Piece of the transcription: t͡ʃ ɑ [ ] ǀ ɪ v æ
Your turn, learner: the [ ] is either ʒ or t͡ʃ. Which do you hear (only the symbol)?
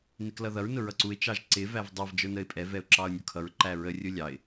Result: ʒ